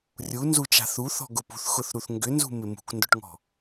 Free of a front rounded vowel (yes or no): no